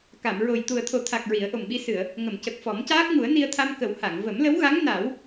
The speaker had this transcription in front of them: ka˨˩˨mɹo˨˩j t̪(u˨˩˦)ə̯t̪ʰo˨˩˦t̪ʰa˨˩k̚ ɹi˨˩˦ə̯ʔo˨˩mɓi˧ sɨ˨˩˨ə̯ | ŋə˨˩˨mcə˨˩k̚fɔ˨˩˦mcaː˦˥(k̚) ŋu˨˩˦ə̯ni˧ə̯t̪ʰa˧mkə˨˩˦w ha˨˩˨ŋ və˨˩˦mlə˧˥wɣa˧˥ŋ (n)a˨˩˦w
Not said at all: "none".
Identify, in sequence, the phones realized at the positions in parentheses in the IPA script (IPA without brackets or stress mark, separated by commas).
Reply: u˨˩, k̚, n